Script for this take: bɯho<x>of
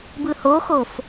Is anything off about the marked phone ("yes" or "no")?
no